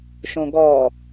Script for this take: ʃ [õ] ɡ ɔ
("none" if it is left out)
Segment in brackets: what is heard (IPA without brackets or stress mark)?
õ